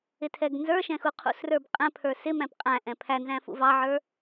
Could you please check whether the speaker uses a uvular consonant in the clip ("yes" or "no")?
yes